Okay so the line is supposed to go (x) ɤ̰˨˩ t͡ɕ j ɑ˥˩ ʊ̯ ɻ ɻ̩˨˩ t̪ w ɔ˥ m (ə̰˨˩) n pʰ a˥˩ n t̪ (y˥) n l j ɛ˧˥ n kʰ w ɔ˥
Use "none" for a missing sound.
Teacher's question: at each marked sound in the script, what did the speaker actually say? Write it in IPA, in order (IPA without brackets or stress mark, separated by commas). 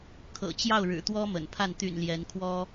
kʰ, ə̰˨˩, y̰˨˩